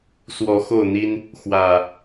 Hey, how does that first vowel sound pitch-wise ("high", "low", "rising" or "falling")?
rising